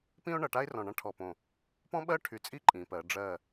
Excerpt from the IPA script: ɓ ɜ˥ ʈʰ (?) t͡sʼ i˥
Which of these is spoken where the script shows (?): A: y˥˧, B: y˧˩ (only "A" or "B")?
B